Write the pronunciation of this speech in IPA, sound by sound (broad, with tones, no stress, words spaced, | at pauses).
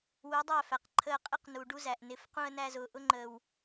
wu˨˦dˤæ˦˨fæ˨q ǃʰəː˧qʼɪ˦q nu˨ɖu˦zæ˨ʔnɪ˨˦f qũ˧ə̯næ˧zʊː˨ ʔʊ˦ŋ͡ǃəː˨w